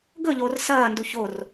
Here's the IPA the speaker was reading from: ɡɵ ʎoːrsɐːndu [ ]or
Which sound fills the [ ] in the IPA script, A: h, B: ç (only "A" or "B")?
B